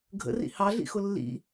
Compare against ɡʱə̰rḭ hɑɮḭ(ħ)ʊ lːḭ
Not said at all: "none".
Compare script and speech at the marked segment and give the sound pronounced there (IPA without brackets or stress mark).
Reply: x